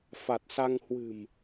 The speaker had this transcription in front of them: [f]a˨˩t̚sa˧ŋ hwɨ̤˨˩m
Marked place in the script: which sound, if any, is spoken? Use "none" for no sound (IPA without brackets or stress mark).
f